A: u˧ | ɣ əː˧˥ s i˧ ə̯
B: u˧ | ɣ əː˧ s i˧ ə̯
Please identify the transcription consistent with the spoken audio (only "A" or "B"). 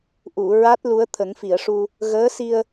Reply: A